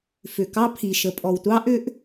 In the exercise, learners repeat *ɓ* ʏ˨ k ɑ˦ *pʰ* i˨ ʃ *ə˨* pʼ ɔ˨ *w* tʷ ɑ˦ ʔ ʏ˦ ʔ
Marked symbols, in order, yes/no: no, yes, yes, yes

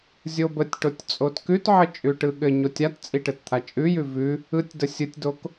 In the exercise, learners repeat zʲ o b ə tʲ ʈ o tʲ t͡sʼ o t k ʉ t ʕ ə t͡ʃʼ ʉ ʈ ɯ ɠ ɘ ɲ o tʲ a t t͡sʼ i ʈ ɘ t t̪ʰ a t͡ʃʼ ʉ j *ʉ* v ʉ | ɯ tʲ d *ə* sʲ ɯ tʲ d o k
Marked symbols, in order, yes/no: yes, yes

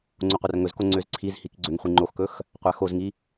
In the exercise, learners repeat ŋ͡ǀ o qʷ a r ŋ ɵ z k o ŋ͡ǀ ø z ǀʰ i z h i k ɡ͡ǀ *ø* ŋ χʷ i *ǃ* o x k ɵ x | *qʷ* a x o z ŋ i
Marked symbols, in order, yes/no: yes, no, yes

